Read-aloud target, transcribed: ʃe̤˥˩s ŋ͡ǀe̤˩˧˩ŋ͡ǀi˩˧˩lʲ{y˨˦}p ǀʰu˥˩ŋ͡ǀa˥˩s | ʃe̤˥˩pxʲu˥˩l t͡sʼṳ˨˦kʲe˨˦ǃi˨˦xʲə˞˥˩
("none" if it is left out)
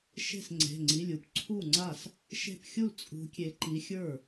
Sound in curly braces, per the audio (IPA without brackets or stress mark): u˨˦